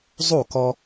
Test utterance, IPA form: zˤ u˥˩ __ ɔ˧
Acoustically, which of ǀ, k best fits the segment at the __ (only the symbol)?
k